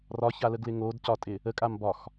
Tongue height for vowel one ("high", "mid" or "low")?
low